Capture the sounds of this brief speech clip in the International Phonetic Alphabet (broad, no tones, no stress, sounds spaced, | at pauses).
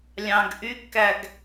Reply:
lʲ ɑ̃ ɡ ʔ y ɡ k æ ɡ